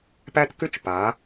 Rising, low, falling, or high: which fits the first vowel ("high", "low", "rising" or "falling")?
high